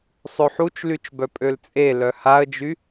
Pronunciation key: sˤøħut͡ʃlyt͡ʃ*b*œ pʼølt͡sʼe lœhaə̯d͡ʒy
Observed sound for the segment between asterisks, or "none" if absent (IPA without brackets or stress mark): b